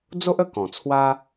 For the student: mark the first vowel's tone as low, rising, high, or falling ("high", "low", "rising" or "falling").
high